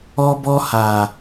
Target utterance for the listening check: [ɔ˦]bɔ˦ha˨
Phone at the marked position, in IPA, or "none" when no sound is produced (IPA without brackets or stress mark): ɔ˦